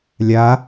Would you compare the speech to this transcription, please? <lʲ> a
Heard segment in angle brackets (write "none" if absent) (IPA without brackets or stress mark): lʲ